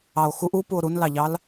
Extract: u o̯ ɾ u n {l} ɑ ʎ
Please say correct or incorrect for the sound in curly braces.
correct